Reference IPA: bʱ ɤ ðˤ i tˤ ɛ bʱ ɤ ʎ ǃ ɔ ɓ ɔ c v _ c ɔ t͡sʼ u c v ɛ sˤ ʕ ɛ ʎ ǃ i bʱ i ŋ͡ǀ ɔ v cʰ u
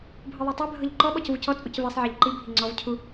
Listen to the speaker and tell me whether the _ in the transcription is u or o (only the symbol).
u